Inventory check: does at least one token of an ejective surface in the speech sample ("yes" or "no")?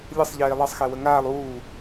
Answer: no